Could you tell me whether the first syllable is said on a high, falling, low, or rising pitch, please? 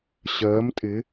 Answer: rising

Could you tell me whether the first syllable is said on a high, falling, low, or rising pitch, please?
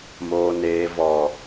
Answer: low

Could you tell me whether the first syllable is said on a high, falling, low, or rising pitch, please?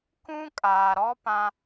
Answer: high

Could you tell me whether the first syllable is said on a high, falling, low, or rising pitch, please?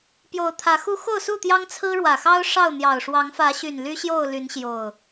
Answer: rising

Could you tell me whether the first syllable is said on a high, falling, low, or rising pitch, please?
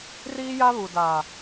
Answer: high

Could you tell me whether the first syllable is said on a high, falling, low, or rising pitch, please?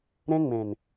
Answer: high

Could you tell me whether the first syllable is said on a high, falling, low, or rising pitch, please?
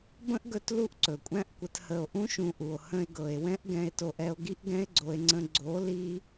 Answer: high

